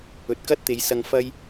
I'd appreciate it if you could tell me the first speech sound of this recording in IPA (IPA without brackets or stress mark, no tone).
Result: ɵ